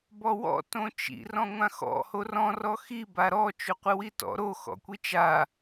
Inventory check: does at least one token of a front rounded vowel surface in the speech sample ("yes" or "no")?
no